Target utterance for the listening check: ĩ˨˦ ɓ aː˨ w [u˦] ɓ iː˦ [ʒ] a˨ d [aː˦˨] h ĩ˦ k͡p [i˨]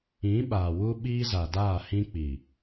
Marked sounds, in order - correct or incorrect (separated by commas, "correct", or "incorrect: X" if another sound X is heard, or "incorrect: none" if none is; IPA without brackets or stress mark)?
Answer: correct, incorrect: z, correct, correct